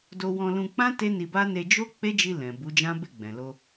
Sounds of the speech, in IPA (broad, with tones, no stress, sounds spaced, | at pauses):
d o˧ w ɔ̃˧ l ũ˧ k͡p ã˦ t e˦ n i˧ b a˦ n e˧ d͡ʒ o˦ k͡p e˦ d͡ʒ i˧ l ɛ̃˨ b u˨˦ d͡ʒ ã˦ b e˦˨ ɡ͡b ɛ̃˨ l o˧